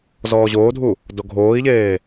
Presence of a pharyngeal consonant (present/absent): absent